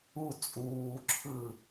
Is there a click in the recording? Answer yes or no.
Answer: yes